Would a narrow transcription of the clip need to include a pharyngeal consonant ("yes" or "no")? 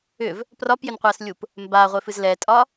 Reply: no